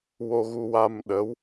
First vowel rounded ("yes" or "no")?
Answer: yes